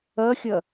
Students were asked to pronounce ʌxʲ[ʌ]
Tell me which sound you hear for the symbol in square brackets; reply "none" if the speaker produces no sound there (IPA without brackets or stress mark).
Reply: ʌ